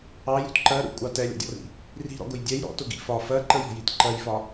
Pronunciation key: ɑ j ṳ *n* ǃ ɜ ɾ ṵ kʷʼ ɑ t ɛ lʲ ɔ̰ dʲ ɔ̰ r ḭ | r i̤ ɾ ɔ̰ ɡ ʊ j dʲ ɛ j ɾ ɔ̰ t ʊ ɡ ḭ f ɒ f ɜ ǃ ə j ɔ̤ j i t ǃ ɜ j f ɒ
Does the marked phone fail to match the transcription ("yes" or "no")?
yes